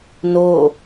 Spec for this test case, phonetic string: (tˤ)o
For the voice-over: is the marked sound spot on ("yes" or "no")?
no